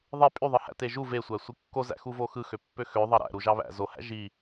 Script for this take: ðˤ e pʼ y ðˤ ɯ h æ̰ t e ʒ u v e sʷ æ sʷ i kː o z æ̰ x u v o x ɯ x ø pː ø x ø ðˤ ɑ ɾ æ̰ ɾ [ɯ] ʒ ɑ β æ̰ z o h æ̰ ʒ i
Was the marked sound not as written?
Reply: yes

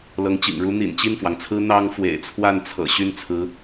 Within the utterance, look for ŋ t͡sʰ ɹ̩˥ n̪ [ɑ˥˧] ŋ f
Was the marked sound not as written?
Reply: yes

